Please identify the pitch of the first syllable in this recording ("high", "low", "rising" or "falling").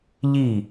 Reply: falling